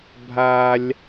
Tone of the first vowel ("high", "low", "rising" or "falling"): low